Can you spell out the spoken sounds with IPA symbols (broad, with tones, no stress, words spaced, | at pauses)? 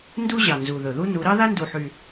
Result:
ndu˥ ʑɑ˨˩nzu˨˩ðɵ˨˩ðu˥ nu˨˦ ɾɑ˥ða˥ndu˨˩ħy˨˩